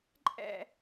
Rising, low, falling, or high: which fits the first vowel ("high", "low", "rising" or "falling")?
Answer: falling